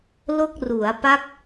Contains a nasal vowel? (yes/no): no